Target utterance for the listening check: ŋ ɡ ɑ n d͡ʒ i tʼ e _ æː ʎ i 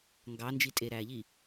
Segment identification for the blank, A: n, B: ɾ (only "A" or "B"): B